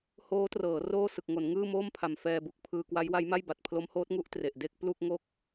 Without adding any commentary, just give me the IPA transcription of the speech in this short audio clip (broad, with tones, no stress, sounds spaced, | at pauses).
h oː˦˥ t r ɤː˩˦ r oː˥˩ s ɯ˨˩ k̚ ŋ o˩˦ n ŋ ɯː˥˩ m oː˥˩ m pʰ a˨˩ m f ɛː˧ b u˨˩ k̚ pʰ ɯː˧ k w a˦˥ j w a˦˥ j m a˥˩ j b a˨˩ t̚ pʰ l o˦˥ m h oː˦˥ t̚ ŋ u˦˥ ʔ t r e˨˩ ʔ d e˥˩ k̚ p l u˥˩ k̚ ŋ o˥˩ k̚